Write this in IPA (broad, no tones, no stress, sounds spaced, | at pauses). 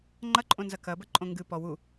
ŋ͡ǃ ɐ ǃʼ õ n z ɐ k ɐ b ɐ ǃʼ õ ŋ ɡ ɨ p ɔ w u